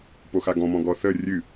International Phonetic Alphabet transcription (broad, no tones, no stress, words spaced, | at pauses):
poxaɡɔ̃mɔ̃ ɡɔθə rʲɨ